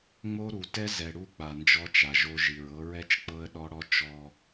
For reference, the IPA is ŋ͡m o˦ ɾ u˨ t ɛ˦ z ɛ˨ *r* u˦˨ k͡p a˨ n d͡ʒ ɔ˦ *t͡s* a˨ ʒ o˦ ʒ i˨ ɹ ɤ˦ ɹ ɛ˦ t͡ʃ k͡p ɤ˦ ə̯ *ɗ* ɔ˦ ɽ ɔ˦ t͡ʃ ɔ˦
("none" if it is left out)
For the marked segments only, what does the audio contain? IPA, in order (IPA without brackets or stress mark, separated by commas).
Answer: ɽ, t͡ʃ, ɗ